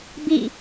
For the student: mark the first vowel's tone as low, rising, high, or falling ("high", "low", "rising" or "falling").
falling